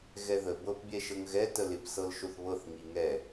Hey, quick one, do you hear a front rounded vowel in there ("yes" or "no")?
no